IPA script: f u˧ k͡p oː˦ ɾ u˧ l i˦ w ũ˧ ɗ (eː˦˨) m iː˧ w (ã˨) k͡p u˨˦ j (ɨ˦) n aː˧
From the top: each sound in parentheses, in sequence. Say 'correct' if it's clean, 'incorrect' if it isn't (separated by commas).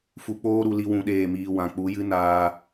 correct, correct, correct